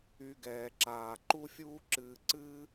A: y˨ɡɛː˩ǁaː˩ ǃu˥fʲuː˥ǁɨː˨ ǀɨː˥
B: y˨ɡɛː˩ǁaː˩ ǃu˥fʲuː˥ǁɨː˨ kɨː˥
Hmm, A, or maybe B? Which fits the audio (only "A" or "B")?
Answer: A